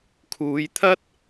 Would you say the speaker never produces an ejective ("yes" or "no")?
yes